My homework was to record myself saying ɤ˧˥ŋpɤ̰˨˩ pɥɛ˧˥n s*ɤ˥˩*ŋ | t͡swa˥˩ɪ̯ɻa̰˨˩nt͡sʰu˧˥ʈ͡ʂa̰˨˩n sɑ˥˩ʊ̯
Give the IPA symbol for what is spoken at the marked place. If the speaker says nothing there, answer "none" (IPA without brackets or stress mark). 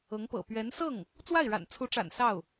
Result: ɤ˥˩